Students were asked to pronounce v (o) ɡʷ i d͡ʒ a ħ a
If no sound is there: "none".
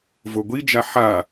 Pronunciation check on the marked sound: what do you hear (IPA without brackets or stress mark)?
o